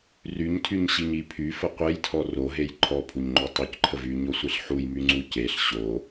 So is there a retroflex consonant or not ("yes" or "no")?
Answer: no